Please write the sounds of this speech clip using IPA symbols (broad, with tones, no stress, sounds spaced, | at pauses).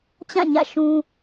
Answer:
t͡ɕ ã˦˨ ɲ ä̰˦˨ ʃ ũ˦